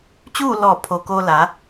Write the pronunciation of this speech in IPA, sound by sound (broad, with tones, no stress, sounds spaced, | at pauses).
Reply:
t͡ɕ uː˥˨ l ɔː˧˩ pʰ o˩ k oː˧ l a˩˧